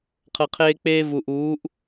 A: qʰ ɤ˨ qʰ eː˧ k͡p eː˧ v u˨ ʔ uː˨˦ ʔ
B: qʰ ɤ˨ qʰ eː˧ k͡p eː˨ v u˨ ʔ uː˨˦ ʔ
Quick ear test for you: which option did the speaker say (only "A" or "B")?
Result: A